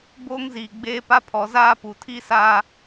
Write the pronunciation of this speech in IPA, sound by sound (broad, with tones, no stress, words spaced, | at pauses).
boː˦ŋziː˨ɡ͡beː˦ pa˦pʰɔ˨˦zaː˦ pu˨tʰi˦saː˦